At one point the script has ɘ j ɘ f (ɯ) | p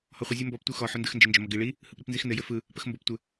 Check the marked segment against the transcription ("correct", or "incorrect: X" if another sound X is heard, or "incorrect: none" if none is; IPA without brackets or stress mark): correct